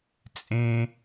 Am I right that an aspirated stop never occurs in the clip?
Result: yes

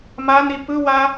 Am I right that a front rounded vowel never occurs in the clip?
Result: yes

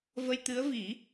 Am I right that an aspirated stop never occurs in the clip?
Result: yes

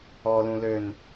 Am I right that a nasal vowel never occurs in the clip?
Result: no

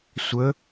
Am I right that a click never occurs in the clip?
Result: yes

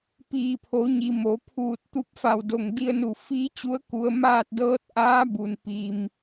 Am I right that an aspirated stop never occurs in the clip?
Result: no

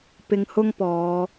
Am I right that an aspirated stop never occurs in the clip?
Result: yes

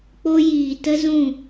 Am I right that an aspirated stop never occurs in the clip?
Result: yes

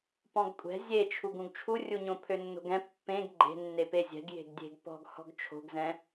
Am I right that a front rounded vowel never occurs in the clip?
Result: no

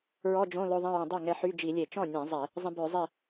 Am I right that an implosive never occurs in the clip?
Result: yes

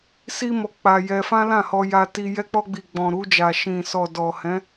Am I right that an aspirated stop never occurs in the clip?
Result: yes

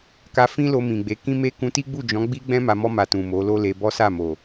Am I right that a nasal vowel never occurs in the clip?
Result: no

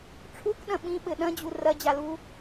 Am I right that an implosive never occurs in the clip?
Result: no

